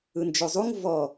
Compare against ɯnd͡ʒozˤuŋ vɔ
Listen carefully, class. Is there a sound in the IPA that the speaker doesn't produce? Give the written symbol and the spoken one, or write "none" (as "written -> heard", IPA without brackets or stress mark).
none